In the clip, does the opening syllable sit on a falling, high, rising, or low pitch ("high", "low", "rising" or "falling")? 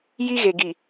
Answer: high